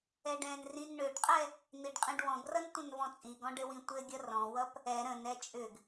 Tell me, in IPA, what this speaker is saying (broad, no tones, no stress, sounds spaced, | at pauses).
ɛ ɖ ɛ̃ n r ĩ n ɳ ʏ ɖ qʼ ɛ | n̪ i ɖ qʼ ĩ ɖ w ɔ̃ ɡ r ʌ n tʷ ə̃ n v ɔ̃ t͡sʼ i ɡ ɔ̃ ɖ ɘ w ĩ tʷ ɘ ɡʲ ʌ r ɔ̃ w ʌ p | ɛ ɾ ə̃ n ɛ t͡ʃʼ ʏ ɡ